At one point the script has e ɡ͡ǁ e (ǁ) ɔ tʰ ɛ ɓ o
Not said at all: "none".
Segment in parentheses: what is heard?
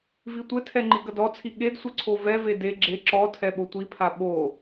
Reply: ǁ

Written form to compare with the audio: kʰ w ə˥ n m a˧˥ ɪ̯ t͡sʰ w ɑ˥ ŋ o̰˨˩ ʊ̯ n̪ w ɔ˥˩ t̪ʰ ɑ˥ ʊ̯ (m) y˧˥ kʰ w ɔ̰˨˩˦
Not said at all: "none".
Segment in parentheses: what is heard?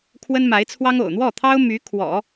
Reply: m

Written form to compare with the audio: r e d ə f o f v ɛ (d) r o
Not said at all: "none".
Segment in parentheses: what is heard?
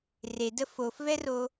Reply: none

